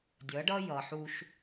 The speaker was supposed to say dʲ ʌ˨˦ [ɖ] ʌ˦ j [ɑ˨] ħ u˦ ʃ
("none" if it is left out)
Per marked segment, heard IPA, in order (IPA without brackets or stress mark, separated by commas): ɖ, ʌ˨